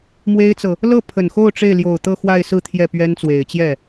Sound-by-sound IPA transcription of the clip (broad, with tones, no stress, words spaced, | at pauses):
mwe˥ɪ̯t͡sɤ˨ | lɤ˥˩ pʰə˨˩nxo˥˧ʊ̯ ʈ͡ʂe˥˩ɪ̯ljo˨˩ʊ̯ t̪ɤ˥˧xwa˥˧ɪ̯ sɹ̩˥˧ t̪ʰjɛ˥˩pɥɛ˥nt͡swe˨˩ɪ̯ t͡ɕjɛ˥˩